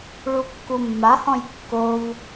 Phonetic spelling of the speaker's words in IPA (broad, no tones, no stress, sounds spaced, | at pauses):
ɭ u kː u mː a h ɔ̃ j kː o v